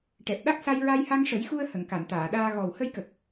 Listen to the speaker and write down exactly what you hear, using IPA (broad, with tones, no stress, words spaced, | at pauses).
ʈɛ˨˩p̚ɗa˦˥k̚sa˧j ɹa˧jha˧ŋʂə˨˩˦jxu˧ə̯ hə˨˩˨ŋka˨˩˨nt̪aː˨˩˨ɗaː˧ ɣɔ˨˩w hə˧jkə˨˩k̚